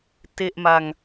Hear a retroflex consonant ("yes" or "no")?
no